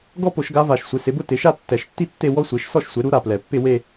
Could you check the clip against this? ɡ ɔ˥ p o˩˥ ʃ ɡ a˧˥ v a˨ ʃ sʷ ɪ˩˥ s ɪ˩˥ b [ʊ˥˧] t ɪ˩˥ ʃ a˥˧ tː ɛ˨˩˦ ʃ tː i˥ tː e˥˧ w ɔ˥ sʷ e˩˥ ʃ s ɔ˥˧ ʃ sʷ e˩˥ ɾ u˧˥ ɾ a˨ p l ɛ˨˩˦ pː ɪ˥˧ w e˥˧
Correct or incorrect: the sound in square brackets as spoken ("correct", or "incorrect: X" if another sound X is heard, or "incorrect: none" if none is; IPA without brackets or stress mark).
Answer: correct